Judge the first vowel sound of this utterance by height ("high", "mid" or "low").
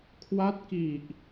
low